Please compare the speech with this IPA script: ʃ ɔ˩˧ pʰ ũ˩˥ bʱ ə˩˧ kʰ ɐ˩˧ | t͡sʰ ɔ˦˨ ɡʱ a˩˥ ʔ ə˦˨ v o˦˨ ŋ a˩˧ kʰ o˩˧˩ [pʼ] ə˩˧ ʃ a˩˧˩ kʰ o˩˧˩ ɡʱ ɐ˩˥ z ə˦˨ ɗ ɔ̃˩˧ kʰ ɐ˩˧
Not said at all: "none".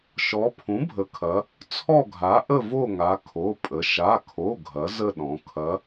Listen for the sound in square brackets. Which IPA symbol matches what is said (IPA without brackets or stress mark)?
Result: pʼ